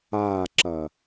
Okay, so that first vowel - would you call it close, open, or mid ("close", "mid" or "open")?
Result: open